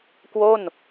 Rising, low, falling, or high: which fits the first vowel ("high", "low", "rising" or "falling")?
falling